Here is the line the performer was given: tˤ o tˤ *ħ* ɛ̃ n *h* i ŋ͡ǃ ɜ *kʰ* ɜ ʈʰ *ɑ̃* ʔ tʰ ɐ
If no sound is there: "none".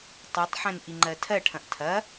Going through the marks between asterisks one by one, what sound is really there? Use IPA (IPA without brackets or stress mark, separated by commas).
ħ, ʔ, tʰ, ɐ̃